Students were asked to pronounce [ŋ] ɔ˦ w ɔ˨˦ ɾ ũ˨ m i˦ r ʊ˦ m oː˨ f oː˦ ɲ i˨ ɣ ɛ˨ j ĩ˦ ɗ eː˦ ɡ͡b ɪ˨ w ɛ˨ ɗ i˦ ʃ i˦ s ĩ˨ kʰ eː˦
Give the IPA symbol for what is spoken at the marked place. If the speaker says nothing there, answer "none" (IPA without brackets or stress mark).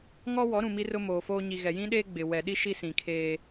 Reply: ŋ